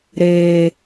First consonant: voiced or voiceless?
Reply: voiced